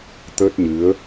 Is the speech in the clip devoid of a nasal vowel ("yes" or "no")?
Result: yes